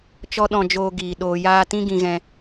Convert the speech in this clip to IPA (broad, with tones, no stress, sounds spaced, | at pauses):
t͡ʃ ɔ˦ ɗ ɔ̃˧ d͡ʒ oː˧ ɡ iː˨ ɗ oː˨ j aː˧ t ĩ˦ ɡ ĩ˧ ɣ ɛ̃˧